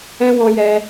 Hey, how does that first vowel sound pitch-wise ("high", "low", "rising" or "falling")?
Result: high